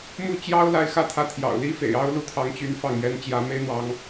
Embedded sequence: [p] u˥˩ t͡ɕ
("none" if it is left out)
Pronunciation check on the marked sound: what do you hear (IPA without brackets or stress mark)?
m